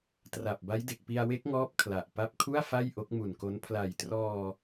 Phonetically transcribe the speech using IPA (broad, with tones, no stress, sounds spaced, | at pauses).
t r a˨˩ p̚ b a˦˥ j d e˨˩ k̚ p i˧ a̯ w e˦˥ k̚ ŋ ɔː˦˥ p̚ kʰ l a˨˩ ʔ p a˦˥ p̚ kʰ u˥˩ a̯ f a˥˩ j ʔ o˦˥ k̚ m u˨˩ n k o˦˥ n pʰ l a˨˩ j t r ɔː˧